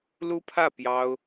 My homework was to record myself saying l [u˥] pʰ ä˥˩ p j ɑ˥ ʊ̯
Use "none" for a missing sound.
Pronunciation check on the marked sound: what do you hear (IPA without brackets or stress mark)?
u˥